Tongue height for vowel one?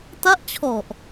low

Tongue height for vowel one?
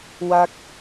low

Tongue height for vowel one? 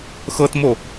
mid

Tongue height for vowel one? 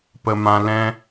mid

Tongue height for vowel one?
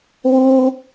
high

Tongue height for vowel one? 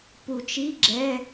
high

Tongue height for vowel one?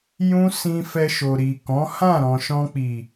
high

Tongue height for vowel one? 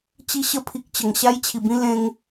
high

